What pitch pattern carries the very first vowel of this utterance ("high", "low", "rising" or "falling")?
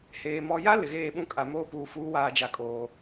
low